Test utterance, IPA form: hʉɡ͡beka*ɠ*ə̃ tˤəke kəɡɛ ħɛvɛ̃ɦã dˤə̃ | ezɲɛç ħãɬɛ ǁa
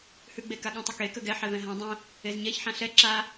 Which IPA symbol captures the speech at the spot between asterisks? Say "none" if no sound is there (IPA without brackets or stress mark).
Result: ɠ